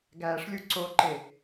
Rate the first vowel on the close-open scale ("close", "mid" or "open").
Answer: open